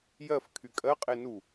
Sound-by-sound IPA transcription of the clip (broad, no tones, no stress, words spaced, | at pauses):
jɜf kʰykʼɜqʼe nu